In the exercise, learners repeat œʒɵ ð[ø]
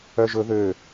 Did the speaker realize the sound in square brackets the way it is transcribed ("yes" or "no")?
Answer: yes